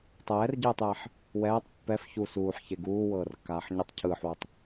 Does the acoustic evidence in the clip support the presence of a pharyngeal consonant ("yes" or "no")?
yes